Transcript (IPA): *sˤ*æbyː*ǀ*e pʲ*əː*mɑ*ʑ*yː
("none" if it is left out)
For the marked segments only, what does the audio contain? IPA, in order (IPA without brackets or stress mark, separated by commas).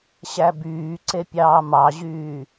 ɕ, ǀ, ɑː, ʑ